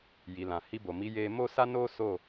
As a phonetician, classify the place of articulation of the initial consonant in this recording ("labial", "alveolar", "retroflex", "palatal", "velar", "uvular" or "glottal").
palatal